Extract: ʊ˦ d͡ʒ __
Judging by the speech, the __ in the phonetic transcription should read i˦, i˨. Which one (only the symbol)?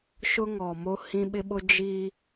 i˦